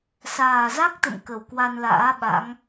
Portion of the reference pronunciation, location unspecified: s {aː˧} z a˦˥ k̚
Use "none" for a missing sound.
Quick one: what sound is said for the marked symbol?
aː˨˩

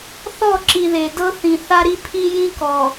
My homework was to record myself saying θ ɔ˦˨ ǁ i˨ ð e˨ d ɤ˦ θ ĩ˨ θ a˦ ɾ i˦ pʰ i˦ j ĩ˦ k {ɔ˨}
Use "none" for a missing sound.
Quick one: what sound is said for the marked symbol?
ɔ˨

